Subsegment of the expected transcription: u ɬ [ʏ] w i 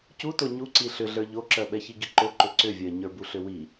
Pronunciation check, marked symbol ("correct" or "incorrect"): correct